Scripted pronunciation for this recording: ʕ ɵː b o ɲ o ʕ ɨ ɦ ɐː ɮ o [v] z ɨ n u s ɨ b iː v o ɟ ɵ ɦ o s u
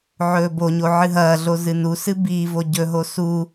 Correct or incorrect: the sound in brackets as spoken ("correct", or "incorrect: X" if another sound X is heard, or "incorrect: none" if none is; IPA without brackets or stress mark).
incorrect: none